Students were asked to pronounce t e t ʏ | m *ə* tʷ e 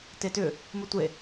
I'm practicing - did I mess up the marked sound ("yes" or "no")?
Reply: no